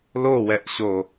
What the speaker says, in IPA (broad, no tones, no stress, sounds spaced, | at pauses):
l o w ɛ ʔ ɕ o